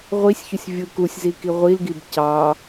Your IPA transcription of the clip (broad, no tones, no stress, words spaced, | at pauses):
ʁʷisʲçusʲ vʲɯkusʲzi kiʁʷilɡib cɑ